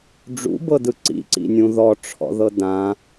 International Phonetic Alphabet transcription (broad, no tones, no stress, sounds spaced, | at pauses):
ɖ͡ʐ ṵ b ɤ d ɯ ǀ ḭ ǀ ḭ nʲ ũ ð ɔ ʈ͡ʂʰ ɔ̰ ð ɤ d ã